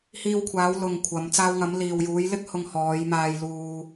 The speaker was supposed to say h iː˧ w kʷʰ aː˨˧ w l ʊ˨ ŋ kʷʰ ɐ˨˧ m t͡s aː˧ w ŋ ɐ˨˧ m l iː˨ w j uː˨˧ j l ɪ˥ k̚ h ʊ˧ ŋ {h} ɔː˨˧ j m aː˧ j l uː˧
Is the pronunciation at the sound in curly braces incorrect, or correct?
correct